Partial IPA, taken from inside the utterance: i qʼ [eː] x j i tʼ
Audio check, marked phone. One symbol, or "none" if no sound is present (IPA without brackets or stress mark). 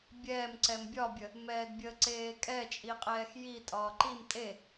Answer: ɛː